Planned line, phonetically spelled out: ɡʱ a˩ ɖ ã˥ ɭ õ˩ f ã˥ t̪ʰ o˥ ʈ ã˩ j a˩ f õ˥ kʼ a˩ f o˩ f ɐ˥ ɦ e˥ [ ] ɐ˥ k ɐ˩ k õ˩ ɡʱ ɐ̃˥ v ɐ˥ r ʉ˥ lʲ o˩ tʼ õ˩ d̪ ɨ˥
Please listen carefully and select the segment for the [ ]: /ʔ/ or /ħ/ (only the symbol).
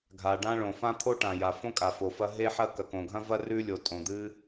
ħ